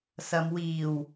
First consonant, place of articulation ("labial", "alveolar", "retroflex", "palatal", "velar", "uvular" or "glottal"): alveolar